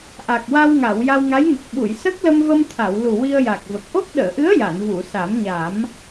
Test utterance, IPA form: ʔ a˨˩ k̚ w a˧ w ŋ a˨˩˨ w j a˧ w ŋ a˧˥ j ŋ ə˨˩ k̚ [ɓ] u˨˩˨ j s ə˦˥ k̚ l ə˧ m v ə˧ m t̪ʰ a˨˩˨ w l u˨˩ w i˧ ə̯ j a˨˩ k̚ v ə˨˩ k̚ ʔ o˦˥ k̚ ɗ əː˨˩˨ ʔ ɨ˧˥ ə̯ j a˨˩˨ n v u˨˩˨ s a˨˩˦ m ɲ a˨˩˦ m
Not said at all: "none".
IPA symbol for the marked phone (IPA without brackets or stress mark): ɓ